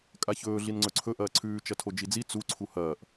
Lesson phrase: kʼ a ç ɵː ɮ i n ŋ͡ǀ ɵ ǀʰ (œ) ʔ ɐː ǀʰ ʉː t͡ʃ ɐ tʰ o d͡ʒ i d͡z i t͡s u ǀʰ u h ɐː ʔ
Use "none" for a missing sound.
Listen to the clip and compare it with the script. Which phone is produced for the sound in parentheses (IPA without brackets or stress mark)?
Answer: ɵ